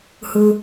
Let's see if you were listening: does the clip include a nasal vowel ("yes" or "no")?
no